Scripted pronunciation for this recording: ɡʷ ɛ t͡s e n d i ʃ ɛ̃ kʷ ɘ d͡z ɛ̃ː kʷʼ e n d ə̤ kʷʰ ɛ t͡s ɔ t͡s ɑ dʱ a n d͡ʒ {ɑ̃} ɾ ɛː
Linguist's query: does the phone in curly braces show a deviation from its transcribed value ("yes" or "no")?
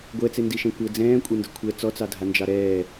yes